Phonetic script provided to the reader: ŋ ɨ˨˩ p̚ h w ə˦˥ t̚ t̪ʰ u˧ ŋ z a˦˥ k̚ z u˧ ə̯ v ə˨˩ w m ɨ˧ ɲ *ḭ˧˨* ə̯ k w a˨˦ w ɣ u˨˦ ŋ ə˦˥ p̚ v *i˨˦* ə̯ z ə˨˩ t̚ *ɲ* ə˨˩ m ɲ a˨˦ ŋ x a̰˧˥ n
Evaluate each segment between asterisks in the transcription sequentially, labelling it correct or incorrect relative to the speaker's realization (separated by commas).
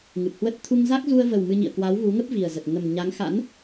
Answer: correct, incorrect, incorrect